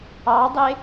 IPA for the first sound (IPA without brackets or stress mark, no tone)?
ɑ